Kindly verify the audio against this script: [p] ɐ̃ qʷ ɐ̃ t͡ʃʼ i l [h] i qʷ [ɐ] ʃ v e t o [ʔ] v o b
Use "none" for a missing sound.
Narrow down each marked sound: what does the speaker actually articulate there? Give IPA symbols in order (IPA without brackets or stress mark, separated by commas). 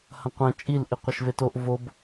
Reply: h, ʔ, ɐ, ʔ